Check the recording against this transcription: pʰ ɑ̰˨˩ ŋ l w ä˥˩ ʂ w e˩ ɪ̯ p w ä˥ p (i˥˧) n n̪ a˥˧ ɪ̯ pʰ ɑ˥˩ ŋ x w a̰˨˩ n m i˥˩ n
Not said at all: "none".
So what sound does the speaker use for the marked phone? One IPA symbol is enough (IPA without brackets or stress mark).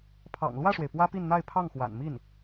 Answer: i˥˧